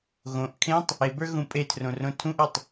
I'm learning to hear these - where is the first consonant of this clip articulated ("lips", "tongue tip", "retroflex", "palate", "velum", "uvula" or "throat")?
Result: velum